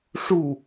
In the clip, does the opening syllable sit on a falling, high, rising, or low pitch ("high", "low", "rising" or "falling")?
falling